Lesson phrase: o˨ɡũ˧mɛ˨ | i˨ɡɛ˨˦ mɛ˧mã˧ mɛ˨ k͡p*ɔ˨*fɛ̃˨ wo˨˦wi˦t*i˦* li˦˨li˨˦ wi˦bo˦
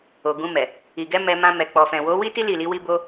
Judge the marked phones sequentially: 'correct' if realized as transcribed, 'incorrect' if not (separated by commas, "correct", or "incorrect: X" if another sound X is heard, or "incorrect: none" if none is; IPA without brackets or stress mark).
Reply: correct, correct